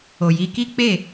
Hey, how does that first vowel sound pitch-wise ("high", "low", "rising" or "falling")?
low